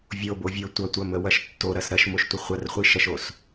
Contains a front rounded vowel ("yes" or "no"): no